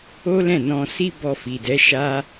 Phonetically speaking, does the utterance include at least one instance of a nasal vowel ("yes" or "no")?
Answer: yes